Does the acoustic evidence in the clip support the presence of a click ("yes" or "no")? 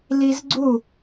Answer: yes